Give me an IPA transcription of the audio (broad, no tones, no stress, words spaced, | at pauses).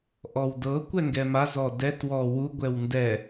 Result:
ʔɔwdɤ kʷɛŋɡɛma zɔdɛt wɔwu ɡʷɛwndɛ